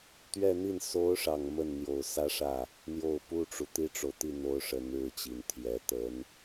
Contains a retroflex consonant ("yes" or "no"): yes